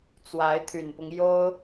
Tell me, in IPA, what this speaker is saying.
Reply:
t͡s w a˧˥ ɪ̯ t̪ʰ y˨˩ n p ʊ˦ ŋ j o˥ ʊ̯

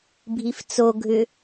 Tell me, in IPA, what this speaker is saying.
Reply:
bʱ i f t͡s o ɡʱ ʏ

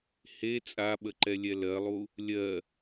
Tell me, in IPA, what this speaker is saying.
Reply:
h e t͡sʼ a ɓ ə ǃ ɛ lʲ ɛ l ɜ lˠ u | lʲ ɜ

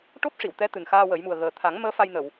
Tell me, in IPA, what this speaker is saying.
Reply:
ʈ o˦˥ p̚ ʂ i˨˩˨ w t̪ ɛ˧˥ t̪ ɨ˨˩ n x aː˧ w ə˨˩˦ j m u˨˩ ə̯ ɣ əː˨˩ t̪ʰ a˨˩˦ ŋ m əː˧˥ f a˧ j n ə˨˩˨ w

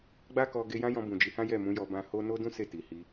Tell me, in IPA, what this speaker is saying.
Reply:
ɡ͡b a˦ k ɔ˧ ɡ e˧ j ã˦ j ɔ̃˧ b ũ˨ d͡ʒ i˨˦ h ã˦ j ɛ˦˨ m ũ˨˦ j ɔ˧ b ã˧ h o˦ n o˦ d ũ˦ s e˦˨ t i˨ h i˧

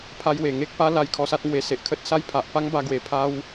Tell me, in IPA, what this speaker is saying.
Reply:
pʰ a˧ j w e˨˩ ŋ e˦ k̚ p a˦ l a˧ j kʰ ɔ˧ s a˦ t̚ ŋ w e˧ s e˨ ʔ kʰ ə˦ t̚ s a˦ j pʰ a˨ ʔ p a˦ ŋ b a˧ ɡ w e˨˩ pʰ a˦ w

